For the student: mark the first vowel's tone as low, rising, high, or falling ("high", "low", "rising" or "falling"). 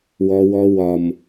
high